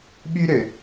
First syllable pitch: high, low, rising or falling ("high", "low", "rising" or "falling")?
high